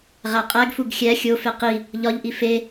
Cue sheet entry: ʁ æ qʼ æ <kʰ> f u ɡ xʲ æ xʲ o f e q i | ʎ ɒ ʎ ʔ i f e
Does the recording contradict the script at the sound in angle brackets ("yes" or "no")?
yes